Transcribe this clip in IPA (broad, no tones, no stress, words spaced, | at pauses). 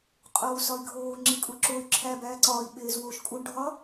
qʼoːu̯sɒi̯ɡʱoː ŋ͡ǁikʼuǁoy̯ ǁʰæ bæːǀɒːi̯ ɓeːzwoːʃkʼuɳ ɖʱɒ